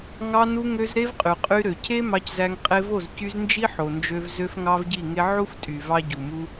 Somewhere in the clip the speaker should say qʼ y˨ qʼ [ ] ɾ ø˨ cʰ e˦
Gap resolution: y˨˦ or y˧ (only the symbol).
y˧